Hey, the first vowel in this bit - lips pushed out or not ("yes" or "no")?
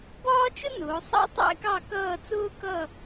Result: yes